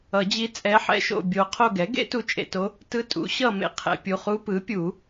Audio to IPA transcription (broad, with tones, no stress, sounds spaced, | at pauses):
ʌ˨˩˦ d͡ʑ i˧˥ t͡sʼ ɛ˧˥ ħ ɛ̰˧˥ ʃ o̰˦˨ bʲ o˧˥ qʰ o˦˨ ɡ ɛ˩˥ ɡ ḛ˧˥ t u˧˥ t͡ʃʼ ḛ˨ t o˧˥ | t ɯ˧˥ tʼ ṵ˩˥ ɕ ʌ˦˨ m ḛ˨ qʰ ɛ̰˨ pʲ u˨ χ u˧˥ p ɯ˩˥ pʲ u˨˩˦